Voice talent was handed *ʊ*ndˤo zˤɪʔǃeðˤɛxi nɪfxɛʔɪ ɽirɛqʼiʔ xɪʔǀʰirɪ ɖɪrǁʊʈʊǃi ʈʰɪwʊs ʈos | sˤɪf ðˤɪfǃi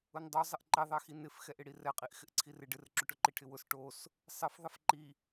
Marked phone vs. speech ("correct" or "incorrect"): correct